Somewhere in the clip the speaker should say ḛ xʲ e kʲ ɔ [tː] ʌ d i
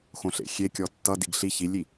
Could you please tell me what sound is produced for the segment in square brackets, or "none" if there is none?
tː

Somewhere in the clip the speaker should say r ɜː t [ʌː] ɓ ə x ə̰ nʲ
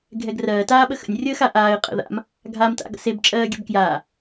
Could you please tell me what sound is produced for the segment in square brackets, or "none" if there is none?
aː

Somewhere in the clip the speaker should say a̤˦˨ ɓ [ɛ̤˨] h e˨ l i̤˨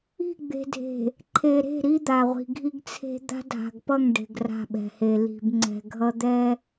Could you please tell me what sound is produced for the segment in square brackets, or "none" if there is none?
ɛ̤˨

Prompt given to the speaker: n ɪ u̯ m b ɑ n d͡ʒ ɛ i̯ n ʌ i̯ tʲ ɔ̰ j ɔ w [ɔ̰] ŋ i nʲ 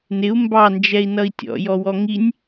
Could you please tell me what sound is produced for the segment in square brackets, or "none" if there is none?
ɔ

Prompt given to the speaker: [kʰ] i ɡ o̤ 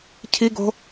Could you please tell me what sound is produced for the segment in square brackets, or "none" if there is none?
cʰ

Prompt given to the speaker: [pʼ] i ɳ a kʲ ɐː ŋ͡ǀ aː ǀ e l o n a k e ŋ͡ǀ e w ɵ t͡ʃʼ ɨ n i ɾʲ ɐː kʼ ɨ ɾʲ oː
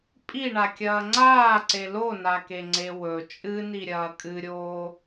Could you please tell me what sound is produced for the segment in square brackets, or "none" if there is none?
pʼ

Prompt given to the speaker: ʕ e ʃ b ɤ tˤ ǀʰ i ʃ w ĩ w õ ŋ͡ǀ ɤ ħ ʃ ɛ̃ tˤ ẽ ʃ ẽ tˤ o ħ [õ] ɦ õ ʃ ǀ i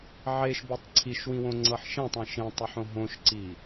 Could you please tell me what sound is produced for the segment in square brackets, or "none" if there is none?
õ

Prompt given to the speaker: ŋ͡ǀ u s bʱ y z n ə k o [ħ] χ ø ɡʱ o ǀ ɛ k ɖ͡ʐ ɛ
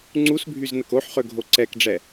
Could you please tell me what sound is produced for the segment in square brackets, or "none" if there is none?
ħ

